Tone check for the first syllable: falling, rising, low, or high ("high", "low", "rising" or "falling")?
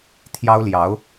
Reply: high